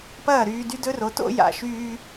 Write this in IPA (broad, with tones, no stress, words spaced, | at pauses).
pɐː˥˩ɾyː˧ dy˥dɵ˥ro˩˥to̰˥ ja̰˩ʃyː˧